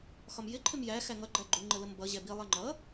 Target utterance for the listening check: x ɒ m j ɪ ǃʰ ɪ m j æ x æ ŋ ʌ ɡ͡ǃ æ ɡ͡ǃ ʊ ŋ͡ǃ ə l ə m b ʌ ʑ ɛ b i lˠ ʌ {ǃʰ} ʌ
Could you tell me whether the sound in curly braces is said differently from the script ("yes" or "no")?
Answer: yes